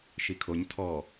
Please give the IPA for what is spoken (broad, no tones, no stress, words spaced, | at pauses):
ʃikʰoɲ tʰɔ